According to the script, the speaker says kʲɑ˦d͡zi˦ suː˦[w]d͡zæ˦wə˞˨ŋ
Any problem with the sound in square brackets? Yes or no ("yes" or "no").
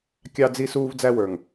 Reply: yes